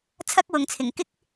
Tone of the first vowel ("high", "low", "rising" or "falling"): high